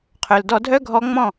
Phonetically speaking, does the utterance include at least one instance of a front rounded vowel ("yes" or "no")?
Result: yes